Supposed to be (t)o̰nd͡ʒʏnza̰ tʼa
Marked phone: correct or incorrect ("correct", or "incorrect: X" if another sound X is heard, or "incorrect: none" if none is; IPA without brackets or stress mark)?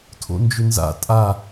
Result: incorrect: tʰ